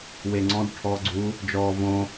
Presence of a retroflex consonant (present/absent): present